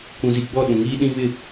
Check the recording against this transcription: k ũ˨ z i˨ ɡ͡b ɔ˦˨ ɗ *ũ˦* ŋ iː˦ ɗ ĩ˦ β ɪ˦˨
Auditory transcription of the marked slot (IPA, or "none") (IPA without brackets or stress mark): ũ˨